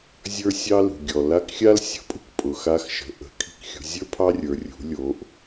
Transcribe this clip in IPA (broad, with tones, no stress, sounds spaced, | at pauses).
zʲ ə˞˥ sʲ ɑ˥ l ṳ˩ ɡʲ ɔ˩ l a˧˥ k xʲ a˥ l sʲ ə̤˩˧ pʼ ṳ˥ k pʼ ʊ˩ x a˧˥ x ʃ ə̤˩˧ ʔ ə̤˩˧ kʰ i̤˧ k xʲ ṳ˩˧ zʲ ə˞˥ pʰ ɑ˥ rʲ ə˞˩˧ rʲ ṳ˩˧ lʲ o˩˧ ʔ